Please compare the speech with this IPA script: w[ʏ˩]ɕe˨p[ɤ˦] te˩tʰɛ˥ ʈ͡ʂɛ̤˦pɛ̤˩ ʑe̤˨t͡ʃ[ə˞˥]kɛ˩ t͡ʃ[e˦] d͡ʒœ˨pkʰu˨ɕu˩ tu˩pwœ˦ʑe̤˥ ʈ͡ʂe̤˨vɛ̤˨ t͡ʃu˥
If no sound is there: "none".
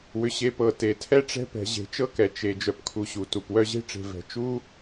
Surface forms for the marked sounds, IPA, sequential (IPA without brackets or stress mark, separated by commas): ʏ˩, ɤ˩, ɤ˥, e˩